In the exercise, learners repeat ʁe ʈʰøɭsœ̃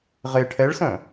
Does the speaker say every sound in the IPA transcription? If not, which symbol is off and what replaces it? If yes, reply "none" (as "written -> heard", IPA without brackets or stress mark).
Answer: ø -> ɛ